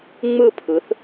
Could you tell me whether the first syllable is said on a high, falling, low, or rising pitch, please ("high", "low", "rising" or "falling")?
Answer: falling